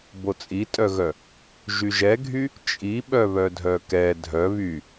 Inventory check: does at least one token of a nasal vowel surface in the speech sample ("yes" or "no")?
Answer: no